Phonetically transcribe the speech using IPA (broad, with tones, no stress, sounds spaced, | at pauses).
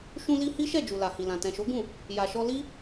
ʃ ũ˧ l i˧ h i˦ ʃ ɛ˦˨ d͡ʒ u˨ l a˨ h i˨ l ã˨ t ɛ̃˨ ʃ o˨˦ ɡ ũ˦˨ | j a˨ ʃ ɔ˧ l i˦